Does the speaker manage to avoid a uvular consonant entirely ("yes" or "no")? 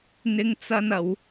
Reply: yes